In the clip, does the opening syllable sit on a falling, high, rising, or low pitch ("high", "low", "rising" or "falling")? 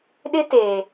high